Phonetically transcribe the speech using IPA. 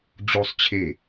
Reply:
d͡ʑosˤ t͡ɕʰe

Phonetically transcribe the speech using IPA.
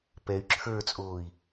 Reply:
pɛy̯ ǁʰə˞t͡sʼoːi̯

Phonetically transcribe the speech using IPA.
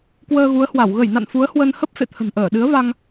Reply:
kwəː˧ɣu˨˦ə̯hwa˧˩w ɣə˧˩jna̰˧˨n fu˨˦ə̯hwə˧n hə˦˥p̚ fḛ˧˨t̪ʰə̤˨˩nʔəː˧˩ ɗɨ˨˦ə̯va˧ŋ

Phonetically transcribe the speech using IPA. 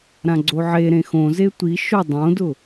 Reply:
ɾãɡ͡ǀoʕe ɾẽxõze tʷi ʃʊ dˤõdʊ

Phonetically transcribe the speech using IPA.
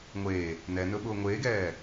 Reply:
ŋʷeː | nɛnɵɓʊː ŋʷeːɡɛː

